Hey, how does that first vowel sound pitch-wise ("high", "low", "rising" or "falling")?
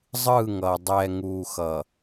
falling